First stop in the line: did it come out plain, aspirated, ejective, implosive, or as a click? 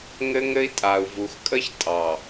ejective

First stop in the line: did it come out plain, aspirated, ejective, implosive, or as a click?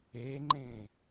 click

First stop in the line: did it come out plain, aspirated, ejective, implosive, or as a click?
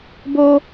plain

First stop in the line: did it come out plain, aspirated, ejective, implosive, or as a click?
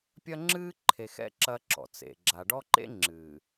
plain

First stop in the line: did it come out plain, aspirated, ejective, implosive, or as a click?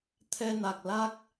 aspirated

